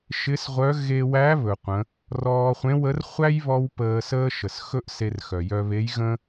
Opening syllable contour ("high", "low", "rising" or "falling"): rising